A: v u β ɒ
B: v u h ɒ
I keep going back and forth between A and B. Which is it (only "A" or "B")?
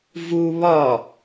A